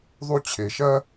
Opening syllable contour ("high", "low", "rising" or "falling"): high